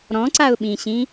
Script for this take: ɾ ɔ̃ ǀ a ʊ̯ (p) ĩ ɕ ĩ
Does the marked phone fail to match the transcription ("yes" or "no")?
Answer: yes